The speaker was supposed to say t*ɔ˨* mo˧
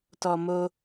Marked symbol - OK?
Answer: yes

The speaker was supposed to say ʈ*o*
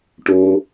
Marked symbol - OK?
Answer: yes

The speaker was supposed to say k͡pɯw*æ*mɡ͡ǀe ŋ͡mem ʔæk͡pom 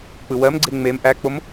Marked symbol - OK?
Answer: no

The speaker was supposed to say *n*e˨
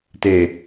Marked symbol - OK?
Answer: no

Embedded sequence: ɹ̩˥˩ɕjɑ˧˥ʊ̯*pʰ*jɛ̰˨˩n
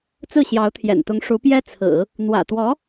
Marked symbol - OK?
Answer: no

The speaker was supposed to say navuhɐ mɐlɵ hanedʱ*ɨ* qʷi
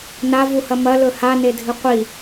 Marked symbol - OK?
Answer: yes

